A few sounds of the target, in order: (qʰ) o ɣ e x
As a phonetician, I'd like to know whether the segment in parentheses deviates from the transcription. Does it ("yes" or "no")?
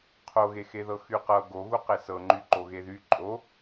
no